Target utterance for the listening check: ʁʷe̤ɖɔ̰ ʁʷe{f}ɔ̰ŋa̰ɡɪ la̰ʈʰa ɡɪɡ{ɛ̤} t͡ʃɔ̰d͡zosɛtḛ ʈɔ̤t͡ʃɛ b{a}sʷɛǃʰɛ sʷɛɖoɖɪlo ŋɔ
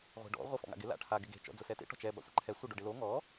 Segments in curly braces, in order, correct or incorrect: correct, incorrect: e̤, incorrect: a̰

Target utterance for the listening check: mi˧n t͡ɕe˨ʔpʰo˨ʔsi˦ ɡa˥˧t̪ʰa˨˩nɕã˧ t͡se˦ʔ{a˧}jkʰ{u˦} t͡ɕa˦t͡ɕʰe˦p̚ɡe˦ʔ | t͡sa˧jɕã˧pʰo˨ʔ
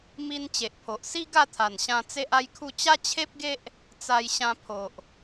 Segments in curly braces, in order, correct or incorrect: incorrect: a˦, incorrect: u˥˧

